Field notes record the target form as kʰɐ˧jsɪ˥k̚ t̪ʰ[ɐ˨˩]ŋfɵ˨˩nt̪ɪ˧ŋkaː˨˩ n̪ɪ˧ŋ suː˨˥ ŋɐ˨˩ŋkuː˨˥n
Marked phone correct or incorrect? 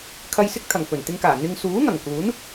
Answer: correct